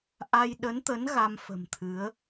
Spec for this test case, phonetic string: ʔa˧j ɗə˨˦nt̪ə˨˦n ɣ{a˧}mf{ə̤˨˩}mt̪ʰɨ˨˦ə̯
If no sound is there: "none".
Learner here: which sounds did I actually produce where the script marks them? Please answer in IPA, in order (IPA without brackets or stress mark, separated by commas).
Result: a˧, ə̤˨˩